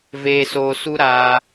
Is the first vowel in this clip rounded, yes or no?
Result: no